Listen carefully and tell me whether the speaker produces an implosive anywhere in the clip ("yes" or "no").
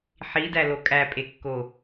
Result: no